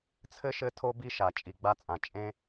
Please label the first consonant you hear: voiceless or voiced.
voiceless